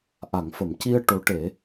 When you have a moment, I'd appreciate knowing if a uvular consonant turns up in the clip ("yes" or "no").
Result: no